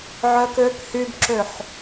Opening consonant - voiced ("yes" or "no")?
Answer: yes